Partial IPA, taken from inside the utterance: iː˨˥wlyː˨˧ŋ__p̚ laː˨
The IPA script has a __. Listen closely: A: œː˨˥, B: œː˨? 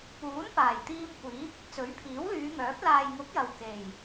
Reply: A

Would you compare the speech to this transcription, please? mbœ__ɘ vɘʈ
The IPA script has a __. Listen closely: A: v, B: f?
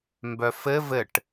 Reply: B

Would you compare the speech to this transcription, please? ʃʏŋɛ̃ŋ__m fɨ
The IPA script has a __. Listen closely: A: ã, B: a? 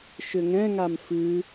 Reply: B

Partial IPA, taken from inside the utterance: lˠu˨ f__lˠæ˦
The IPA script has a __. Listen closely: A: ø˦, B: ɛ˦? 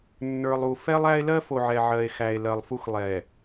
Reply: B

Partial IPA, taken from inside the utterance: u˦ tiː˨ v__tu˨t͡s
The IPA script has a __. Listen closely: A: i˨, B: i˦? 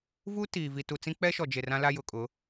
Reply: A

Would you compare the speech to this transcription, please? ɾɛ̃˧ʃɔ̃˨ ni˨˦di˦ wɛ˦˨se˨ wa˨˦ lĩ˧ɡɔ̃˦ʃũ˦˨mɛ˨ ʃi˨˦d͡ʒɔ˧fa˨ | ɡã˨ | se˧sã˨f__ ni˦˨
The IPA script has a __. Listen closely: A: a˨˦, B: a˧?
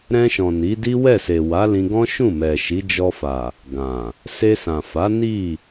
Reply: A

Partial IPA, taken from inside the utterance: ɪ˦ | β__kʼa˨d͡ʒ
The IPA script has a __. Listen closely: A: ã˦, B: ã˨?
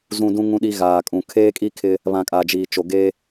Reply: B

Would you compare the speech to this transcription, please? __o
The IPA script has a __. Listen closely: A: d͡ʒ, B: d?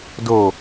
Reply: B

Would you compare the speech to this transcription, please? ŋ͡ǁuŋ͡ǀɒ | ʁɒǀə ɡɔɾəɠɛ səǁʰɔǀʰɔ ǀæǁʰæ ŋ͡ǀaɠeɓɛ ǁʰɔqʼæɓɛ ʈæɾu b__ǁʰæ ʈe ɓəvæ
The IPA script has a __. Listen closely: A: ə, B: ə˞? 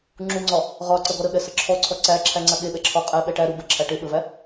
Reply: A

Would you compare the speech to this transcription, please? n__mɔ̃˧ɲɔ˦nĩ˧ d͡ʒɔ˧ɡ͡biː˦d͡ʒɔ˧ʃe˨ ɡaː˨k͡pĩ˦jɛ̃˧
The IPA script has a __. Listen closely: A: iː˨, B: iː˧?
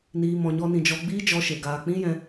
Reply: B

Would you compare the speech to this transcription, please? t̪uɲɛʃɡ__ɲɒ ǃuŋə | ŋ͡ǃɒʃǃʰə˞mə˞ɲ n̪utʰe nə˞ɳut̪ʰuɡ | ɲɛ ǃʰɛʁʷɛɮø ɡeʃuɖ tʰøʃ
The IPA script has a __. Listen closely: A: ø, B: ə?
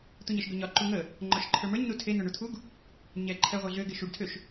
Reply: A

